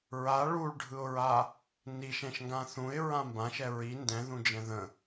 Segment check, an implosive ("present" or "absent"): absent